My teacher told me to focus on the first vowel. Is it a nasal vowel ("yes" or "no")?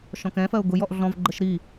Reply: yes